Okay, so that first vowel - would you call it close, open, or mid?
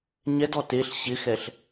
mid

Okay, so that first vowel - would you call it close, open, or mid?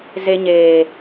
mid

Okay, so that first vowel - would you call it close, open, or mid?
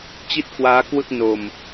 close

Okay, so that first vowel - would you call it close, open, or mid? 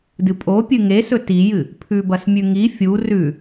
close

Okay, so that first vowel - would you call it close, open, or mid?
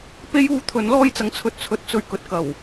mid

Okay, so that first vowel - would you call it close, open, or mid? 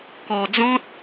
mid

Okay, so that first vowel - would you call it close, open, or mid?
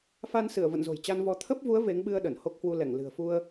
open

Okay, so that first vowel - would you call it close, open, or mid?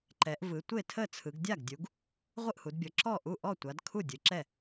mid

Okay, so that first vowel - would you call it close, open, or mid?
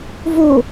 mid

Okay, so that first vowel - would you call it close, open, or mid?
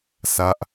open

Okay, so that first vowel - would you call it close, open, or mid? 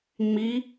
close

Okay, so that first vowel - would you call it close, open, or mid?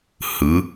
close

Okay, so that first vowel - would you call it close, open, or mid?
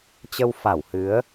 mid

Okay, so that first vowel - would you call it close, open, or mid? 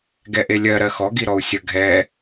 mid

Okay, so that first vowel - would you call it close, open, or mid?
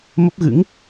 mid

